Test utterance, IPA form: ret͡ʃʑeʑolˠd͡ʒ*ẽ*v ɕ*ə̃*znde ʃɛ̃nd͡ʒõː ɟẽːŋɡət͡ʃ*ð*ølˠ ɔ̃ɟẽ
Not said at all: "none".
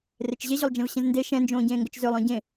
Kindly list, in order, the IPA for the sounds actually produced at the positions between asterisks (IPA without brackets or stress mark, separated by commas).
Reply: ɛ̃, ə̃, z